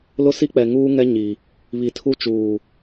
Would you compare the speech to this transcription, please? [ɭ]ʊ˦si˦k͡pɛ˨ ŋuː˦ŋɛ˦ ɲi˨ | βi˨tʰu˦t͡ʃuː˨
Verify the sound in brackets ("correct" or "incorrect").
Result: incorrect